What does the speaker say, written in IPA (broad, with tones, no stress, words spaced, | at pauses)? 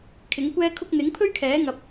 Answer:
kʰɪ˨˥ŋkʷɛː˥kʰʊ˥k̚ n̪ɪ˨˥ŋpʰɵ˥ɥkʰɛː˨˥ ŋɐ˧p̚